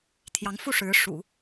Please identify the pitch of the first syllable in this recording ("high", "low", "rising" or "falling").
rising